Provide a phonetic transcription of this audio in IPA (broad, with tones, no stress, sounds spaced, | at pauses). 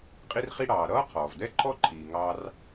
qʼ i˥ r χ i˥ ɽ ɑː˩ ɾ ʌː˥ qʰ ɔː˩ v d ɛ˥ ǃʰ ɔ˥ ǃʰ iː˩ ŋ ɑ˥ r